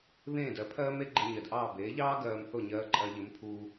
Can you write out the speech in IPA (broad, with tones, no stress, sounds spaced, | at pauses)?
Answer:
β ẽː˥˩ d ɜ˩˥ pʰ ɜː˥ m e˥ ɡ͡ǃ e˧ ɲ ɜ˩ d ʔ ɑː˥˩ b eː˩˥ ʎ ɑː˥ ɡ ɜː˧ m θ o˥˩ ɲ ɜː˧ ǃʼ ɜ˧ ʎ ɘ˩˥ m pʰ uː˧